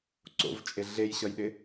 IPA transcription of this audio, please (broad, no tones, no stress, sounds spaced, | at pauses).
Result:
ǀ o̰ v t͡ʃʼ e ɮ e j ɕ ʌ j ɗ ɪ